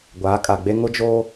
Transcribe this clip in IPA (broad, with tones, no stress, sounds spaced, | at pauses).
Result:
ɡʷ aː˨˦ kʼ a˨ ɡ͡b e˦ ŋ ʊ˦ d͡ʒ oː˦